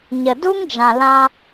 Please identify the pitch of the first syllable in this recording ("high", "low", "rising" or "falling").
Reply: low